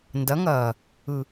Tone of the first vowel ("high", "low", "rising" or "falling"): rising